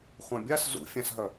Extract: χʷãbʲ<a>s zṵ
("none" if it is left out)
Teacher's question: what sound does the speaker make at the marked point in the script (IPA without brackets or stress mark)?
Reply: a